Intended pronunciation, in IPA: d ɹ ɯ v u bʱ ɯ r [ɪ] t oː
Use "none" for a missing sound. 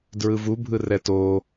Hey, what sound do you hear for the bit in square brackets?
ɛ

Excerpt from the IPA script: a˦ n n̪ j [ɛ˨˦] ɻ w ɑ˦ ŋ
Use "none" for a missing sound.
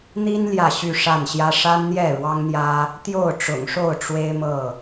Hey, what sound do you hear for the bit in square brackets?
ɛ˥˨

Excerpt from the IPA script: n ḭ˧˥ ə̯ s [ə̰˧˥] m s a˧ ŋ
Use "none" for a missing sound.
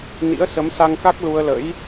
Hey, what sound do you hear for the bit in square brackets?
ə˨˦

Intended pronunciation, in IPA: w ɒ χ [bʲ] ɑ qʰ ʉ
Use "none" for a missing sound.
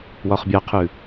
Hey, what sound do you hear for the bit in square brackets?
bʲ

